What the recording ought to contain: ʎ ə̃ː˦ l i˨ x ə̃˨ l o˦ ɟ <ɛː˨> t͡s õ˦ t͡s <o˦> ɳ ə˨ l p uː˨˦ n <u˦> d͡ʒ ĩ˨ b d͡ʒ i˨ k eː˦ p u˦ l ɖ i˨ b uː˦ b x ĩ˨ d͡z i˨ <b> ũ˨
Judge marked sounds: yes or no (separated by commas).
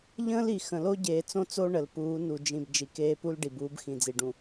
no, yes, no, no